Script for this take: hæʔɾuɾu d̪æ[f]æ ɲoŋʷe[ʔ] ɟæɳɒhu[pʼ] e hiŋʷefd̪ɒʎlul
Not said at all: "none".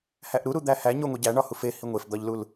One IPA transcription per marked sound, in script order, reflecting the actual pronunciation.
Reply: h, none, f

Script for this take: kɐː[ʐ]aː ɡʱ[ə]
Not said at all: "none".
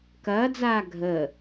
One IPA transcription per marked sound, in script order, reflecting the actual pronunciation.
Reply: d͡z, ə

